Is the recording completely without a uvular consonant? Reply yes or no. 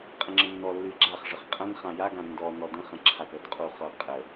no